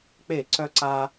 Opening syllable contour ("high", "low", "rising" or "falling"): falling